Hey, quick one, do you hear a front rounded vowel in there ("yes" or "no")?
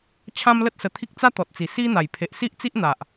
no